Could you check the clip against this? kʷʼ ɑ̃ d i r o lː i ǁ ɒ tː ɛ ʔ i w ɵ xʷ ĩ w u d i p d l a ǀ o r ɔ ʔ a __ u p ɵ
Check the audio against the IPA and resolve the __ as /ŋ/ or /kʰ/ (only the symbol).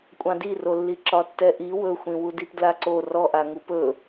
ŋ